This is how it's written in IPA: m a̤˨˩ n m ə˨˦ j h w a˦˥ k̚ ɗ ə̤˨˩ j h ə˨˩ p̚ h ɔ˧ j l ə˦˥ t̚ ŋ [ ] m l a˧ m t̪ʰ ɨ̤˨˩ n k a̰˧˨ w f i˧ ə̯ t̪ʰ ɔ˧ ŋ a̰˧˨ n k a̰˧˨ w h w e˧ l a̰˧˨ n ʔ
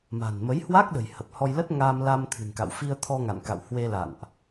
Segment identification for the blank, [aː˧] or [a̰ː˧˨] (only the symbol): aː˧